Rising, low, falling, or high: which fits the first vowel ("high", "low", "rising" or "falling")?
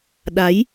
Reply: rising